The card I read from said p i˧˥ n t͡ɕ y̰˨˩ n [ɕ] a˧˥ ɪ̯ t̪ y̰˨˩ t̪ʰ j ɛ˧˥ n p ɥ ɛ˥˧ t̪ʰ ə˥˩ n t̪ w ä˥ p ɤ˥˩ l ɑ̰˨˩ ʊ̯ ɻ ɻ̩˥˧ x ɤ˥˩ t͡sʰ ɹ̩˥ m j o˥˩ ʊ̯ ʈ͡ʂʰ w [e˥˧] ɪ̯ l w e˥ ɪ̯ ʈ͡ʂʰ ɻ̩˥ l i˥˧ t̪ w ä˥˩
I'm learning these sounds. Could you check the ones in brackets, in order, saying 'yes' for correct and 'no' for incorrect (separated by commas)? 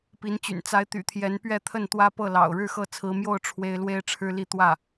no, no